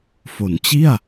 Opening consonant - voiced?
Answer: no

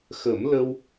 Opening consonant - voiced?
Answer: no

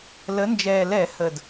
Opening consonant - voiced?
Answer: yes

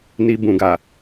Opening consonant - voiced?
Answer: yes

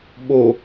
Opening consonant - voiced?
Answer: yes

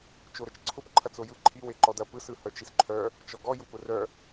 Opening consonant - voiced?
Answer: no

